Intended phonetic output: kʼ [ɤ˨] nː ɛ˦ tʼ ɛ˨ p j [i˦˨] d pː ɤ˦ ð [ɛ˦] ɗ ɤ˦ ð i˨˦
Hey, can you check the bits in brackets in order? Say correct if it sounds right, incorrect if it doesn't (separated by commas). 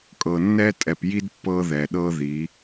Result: correct, incorrect, incorrect